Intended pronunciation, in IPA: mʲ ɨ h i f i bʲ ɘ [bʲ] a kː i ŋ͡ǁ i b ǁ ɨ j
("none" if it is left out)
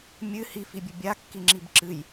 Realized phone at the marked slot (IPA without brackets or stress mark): bʲ